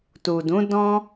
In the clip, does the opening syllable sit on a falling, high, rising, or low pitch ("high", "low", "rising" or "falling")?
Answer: low